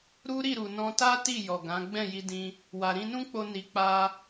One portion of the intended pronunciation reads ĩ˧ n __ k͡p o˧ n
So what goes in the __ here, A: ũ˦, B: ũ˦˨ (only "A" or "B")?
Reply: A